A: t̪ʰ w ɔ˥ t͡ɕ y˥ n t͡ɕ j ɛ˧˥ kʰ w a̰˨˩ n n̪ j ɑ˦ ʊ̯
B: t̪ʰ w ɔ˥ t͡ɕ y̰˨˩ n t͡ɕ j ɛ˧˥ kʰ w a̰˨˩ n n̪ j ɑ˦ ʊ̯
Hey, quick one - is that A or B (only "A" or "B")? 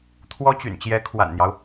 B